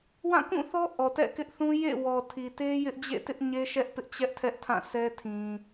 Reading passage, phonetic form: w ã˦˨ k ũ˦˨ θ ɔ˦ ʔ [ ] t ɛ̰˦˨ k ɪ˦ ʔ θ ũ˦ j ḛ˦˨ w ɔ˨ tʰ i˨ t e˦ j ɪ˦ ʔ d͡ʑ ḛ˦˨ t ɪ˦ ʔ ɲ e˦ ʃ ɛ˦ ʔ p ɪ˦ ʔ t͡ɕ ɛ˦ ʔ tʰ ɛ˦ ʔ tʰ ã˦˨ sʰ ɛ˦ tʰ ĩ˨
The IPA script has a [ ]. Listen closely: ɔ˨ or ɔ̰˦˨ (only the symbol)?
ɔ˨